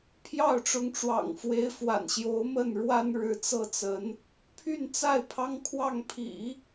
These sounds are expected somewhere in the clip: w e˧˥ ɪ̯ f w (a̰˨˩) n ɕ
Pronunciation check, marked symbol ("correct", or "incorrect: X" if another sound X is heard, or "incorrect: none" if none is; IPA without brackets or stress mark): correct